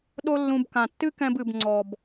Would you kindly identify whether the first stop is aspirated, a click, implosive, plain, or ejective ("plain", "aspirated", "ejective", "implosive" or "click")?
implosive